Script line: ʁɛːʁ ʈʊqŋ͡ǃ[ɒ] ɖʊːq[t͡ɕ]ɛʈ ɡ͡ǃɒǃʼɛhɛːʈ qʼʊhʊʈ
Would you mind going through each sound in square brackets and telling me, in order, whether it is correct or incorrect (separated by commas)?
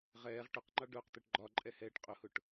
incorrect, incorrect